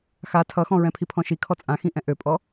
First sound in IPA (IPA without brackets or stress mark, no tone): x